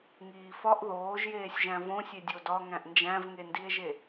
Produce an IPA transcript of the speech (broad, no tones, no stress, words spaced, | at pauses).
ŋiːfɒʔ ðoːʒjeːsʲʒæ̃ võsʲe dʲodɒŋæ̃ʔ nd͡ʒæ̃vŋendie̯ʒe